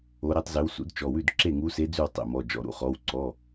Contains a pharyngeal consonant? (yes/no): no